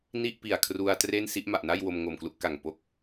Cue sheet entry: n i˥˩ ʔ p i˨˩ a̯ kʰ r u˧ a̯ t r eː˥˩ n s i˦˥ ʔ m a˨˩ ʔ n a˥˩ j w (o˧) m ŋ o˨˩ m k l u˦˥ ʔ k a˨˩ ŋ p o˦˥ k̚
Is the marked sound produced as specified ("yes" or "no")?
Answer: yes